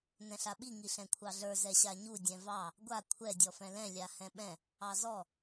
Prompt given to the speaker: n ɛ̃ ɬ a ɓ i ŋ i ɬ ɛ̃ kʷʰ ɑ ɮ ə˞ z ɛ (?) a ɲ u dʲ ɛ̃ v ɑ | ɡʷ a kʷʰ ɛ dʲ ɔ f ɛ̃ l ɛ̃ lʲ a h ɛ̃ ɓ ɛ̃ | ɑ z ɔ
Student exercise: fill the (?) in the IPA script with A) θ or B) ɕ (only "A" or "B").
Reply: B